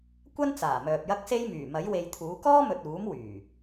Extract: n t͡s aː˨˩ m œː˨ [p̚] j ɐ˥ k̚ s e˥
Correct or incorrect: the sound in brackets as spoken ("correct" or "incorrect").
correct